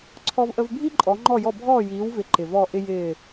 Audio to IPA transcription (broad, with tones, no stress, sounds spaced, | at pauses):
ǀʰ ɔ˧ v ʔ ə˧ v bʱ i˥ ǃʼ ɔ˩˥ ŋ͡ǃ ɔ˥˩ j ɔ˥˩ bʱ ɔː˥˩ j iː˩˥ w v ɪ˩˥ ǃ ɪ˩ v ɔ˥˩ ʔ ɪ˥ j ɪː˥˩